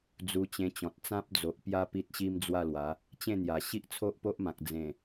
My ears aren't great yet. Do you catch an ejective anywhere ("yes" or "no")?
no